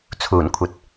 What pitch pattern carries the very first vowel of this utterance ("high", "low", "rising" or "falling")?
low